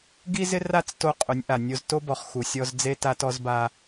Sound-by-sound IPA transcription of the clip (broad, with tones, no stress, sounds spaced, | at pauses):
ɡ i˦ z ɪ˦ r a˦˨ t͡s t o˦ qʼ ʊ˨˦ nʲ ʔ a˨ nʲ o˦ z t o˦ b ɔ˨ χ x u˨ sʲ ɔ˦ z d͡z e˦ t a˦ t ɔ˦ z b a˦